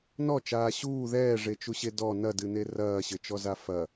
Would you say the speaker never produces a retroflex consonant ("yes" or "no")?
no